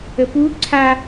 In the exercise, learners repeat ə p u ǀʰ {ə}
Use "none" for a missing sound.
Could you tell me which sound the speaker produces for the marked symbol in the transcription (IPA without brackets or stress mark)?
a